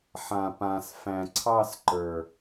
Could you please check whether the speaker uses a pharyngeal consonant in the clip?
yes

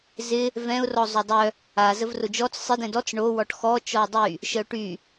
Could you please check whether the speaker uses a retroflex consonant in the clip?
yes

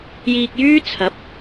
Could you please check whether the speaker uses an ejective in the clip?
no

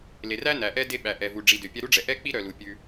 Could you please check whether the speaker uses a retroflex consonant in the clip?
yes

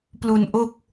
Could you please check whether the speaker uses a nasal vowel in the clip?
no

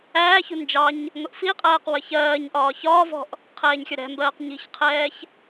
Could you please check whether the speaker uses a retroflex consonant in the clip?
no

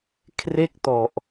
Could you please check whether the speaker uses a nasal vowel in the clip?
no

